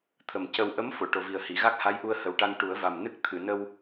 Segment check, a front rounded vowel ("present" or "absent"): absent